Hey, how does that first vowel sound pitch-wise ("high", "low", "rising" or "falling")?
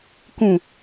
low